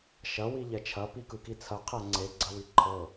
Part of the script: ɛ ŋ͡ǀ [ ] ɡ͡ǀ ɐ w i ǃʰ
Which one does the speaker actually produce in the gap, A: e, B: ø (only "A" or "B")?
A